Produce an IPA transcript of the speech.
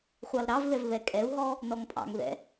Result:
χʷ ɑ l ɾ ɑ v ð ɛ v β ɛ kʼ ɛ u̯ ɦ ɔ | n ɔ ŋ pʼ ɑ̰ ŋ ð ɛ̰

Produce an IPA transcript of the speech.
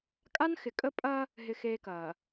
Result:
kʼ a˦ n x ɪ˨ kʼ ə˦ pʼ ɐ˦ | ɦ ɪ˦ x eː˦ k ɐː˨

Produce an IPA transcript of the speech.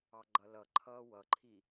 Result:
ɑ ɡ͡ǃ ʌ l ʌ ǃʰ ʌː w ʌ ǃʰ i

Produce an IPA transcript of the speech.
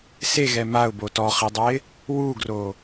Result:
s e ɣ ɛ m a ʊ̯ b o t ɔ χ i dˤ ɛ ɪ̯ | w u ɡ r o

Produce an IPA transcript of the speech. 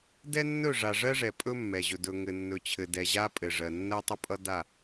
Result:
d ɛ˦ nː ɵ˦˨ ʐ a˨ ʐ ɜ˦ ʐ ɛ˨ pʼ ɵ˦ mː ɛ˨ ʑ ɵ˨ d ɵ˨ ŋ ɘ˨ nː ɵ˨ t͡ɕʰ ɘ˨ d ɛ˨ ʑ a˦ pʼ ɘ˨ ʐ ɜ˨ nː ɜ˦ tˤ ə˦ pʼ ʌ˦ d a˦˨

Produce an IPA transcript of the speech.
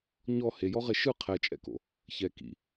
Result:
ɲ ɔ h e j ɔ ʁ e ʃ ɯ qʰ ɛ t͡ʃʼ ɛ̰ k o̰ | ç ɛ k ḭ

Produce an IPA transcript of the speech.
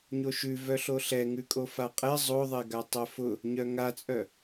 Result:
ɲ o ʃ ʉ v œ ɬ o ɬ ɛ ŋ ʉ kʼ o f a qʼ ɛ zˤ o ðˤ ɛ ɡ a tˤ œ f ʊ | ɲ œ ŋ a t͡sʼ œ

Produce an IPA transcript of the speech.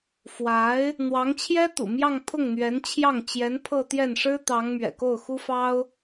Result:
f w a˧˥ ɪ̯ | n̪ w ɑ˧˥ ŋ t͡ɕʰ j ɛ˥ t̪ ṵ˨˩ m j ɑ˥˧ ŋ pʰ ʊ˥˩ ŋ n̪ ɥ ɛ˧˥ n t͡ɕʰ j ɑ˥˩ ŋ t͡ɕ j ɛ˧˥ n pʰ ɤ˥˧ t̪ j ɛ˥˩ n ʂ ɻ̩˥ t̪ ɑ˧˥ ŋ m ɥ ɛ̰˨˩ k o˥˩ ʊ̯ x u˥ f ɑ˥ ʊ̯

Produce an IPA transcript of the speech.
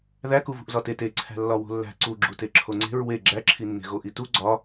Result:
ð æ k u v ṳ ʔ z ɒ t e t e ǀʰ æ̤ lː ɒ w o̤ lː æ̤ ǀ u ɡ͡ǁ u t e ǁʰ o ŋ͡ǀ e̤ ɹ w e ɡ͡ǁ æ ǁʰ i nː e̤ ɣ o ʔ i t u ɡ͡ǀ ɒ

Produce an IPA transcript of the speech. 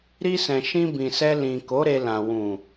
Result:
ɾ i˧ s ɛ̃˨ ʃ ĩ˧ b ĩ˨ s ɛ˧ l ĩ˨ k o˨˦ ɾ e˧ l ã˨ w ũ˨

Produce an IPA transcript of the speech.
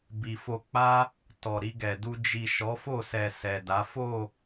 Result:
b i˨ f o˧ k͡p a˦ | t ɔ˨ ɾ i˧ ɡ ɛ˨ d u˧ d͡ʒ i˨ ʃ ɔ˨˦ f o˦˨ s ɛ˨ s ɛ˨ d a˨˦ f o˦˨

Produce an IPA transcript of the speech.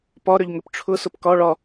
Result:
p ɒ ɾ ʏ ʎ ŋ ʏ p ʈ͡ʂʰ ʊ s ʊ p k ɒ ɭ ɒ

